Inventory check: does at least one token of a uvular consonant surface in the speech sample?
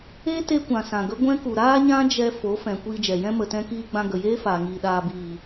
no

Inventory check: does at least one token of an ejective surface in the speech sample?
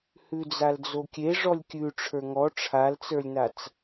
no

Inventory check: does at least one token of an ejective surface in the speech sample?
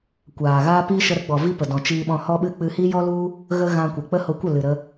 no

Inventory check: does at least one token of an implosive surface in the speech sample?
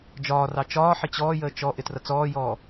no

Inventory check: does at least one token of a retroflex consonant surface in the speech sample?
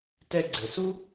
no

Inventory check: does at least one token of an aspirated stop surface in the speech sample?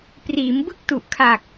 yes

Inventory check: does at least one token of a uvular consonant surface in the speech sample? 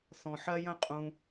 yes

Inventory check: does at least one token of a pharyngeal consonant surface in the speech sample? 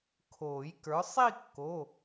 no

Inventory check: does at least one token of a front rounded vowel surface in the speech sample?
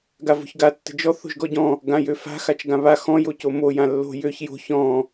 yes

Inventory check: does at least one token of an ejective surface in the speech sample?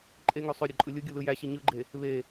yes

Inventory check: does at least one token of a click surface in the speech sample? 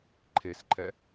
yes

